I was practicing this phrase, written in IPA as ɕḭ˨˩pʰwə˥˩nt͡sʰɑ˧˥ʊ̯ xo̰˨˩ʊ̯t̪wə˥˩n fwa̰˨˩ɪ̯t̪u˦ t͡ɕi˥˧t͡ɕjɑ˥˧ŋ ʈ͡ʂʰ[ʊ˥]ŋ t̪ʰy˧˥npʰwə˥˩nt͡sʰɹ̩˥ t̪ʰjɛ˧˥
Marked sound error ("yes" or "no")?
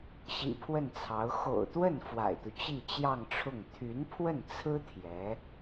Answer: yes